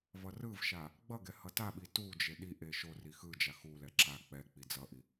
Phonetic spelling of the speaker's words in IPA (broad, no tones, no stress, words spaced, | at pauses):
vʌrɯvʃa | ɡ͡bʌɡɛ hʌtaɓi tud͡ʒe ɗiʔe ʃo rixɯd͡ʒa xulɛ ǁa k͡pɛ k͡pid͡zʌʔi